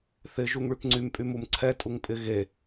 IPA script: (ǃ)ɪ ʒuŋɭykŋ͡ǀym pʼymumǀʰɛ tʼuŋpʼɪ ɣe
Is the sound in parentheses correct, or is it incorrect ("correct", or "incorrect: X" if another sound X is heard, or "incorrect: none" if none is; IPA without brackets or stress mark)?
incorrect: θ